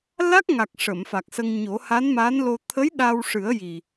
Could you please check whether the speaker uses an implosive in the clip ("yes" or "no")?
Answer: yes